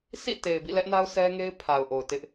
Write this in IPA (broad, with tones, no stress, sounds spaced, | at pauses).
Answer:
s ḭ˦˨ t e˨ ɪ̯ b ḭ˦˨ l ɛ˦ ʔ n a˦ ʊ̯ sʰ ɛ˦ ŋ e˦ ɪ̯ pʰ a˨ ʊ̯ ʔ o˨ ʊ̯ t ɪ˦ ʔ